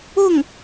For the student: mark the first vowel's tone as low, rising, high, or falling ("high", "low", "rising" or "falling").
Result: falling